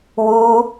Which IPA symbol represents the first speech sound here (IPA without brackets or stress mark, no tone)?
w